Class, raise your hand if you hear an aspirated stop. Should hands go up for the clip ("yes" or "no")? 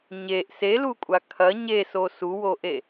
yes